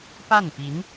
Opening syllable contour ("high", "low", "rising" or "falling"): falling